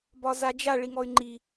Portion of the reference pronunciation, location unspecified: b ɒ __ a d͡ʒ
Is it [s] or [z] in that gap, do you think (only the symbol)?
z